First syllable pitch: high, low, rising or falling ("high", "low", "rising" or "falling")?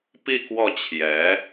falling